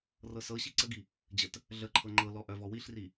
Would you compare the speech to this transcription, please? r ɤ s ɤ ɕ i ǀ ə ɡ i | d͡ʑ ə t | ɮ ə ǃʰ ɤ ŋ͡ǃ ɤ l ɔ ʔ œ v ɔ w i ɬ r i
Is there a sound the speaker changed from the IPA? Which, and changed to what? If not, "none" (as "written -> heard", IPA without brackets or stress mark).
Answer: none